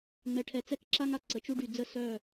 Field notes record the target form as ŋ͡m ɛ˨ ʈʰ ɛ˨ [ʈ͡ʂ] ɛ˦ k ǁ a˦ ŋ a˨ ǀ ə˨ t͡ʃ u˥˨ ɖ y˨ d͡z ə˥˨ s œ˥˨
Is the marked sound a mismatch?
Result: yes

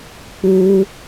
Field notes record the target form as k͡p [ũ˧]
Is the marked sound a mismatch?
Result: yes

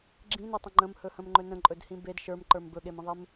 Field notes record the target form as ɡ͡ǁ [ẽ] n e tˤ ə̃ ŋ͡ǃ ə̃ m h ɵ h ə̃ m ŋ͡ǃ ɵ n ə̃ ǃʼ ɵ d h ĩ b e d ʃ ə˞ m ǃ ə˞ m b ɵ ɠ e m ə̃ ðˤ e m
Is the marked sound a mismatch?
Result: yes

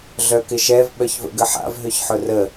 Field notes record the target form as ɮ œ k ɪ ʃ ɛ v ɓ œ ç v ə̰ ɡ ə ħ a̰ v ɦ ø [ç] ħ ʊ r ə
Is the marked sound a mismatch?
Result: no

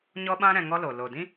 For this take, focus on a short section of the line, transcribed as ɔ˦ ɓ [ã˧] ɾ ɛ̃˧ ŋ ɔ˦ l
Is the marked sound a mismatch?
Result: yes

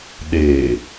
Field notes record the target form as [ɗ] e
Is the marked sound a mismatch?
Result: no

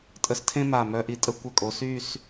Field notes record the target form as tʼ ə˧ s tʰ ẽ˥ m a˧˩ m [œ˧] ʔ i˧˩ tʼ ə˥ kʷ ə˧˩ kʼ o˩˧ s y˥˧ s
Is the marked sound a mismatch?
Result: no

